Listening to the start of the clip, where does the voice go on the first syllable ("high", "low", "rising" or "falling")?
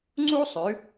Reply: high